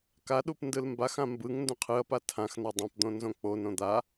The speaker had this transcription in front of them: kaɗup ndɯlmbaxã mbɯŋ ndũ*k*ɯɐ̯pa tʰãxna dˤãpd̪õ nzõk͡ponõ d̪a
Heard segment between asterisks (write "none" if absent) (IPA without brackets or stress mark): qʰ